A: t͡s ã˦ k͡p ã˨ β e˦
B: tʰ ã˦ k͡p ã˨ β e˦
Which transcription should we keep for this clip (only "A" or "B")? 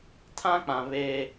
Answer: B